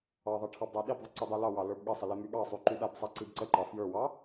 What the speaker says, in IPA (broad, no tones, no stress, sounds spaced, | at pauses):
ɑ ðˤ ɑ ʈʰ ɑ b dˤ a ɗ i b ðˤ ə ǀ ə dˤ y l ɑ w ɑ l ə˞ b ɠ ə sˤ ə l i m y ɠ ɑ sˤ y ǃ y ɗ a b sˤ a ǀ i b ǀ ə ǃ ɑ f j ə˞ w ɑ